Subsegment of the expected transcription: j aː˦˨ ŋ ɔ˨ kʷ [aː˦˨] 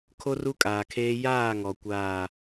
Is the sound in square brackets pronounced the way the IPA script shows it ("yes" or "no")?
yes